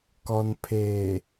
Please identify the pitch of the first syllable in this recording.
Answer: low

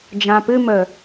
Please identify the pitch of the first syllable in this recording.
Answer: low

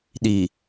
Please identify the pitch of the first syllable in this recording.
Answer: low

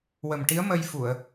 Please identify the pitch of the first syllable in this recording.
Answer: low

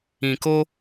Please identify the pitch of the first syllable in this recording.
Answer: low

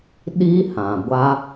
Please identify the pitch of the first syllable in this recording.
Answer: high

